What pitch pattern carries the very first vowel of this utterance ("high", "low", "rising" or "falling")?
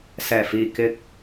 low